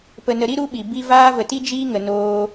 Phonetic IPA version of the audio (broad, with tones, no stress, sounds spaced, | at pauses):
p ə˨ n ə˨ ɾ i˧ ɾ u˦ ɓ i˨ b i˧ v aː˦ v ə˨ t i˦ d͡ʒ iː˦ ŋ ə˨ n oː˧